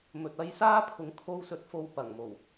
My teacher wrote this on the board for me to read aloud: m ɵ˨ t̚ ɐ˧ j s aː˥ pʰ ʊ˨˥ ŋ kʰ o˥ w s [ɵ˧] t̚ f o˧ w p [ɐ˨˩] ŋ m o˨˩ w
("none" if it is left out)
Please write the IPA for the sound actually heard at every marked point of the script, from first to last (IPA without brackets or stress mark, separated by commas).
ɵ˧, ɐ˨˩